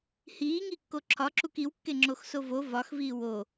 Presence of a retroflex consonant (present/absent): absent